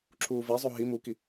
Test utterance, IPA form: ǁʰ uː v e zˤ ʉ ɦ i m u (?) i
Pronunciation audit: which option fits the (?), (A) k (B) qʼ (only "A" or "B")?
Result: A